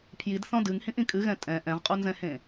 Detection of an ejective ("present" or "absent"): present